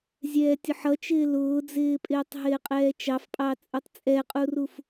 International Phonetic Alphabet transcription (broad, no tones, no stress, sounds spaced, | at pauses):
zʲ ɛː tʲ ʊ ħ ʌ t͡ʃ ɪː l ʊː d͡z ɪː pʼ ɪː tˤ ɦ ɪː qʼ ɛː t͡ʃ ɑ f pʼ ɑ t͡sʼ u tˤ t͡sʼ ɛ qʼ u r u f